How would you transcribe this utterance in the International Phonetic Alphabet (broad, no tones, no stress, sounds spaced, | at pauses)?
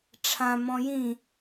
ʈ͡ʂʰ ã m ɔ̃ j ĩ